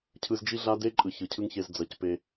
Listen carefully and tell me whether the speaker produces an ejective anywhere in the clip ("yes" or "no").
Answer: yes